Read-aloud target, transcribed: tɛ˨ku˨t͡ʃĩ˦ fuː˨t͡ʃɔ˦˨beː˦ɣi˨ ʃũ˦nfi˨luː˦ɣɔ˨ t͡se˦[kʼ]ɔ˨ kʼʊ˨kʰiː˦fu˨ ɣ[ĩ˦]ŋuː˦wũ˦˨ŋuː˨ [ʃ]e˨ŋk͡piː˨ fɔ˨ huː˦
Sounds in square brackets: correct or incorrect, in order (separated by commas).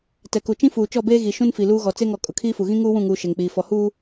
incorrect, correct, correct